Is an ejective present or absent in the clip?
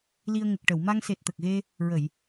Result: absent